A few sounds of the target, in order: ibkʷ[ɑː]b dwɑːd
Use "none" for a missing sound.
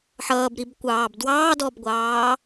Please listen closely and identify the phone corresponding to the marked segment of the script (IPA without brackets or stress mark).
ɑː